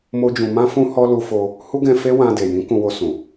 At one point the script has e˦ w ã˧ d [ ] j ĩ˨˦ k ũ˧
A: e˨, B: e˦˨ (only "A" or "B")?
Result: A